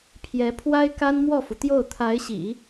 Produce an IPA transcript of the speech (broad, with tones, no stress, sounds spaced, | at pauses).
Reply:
pʰ j ɛ˧˥ pʰ w a˥ ɪ̯ k a˥ n m w ɔ˥˩ f u˩ t̪ j o˥˩ ʊ̯ t̪ʰ a˧˥ ɪ̯ ɕ ḭ˨˩˦